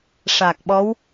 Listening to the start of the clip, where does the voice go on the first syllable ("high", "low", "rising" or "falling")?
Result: low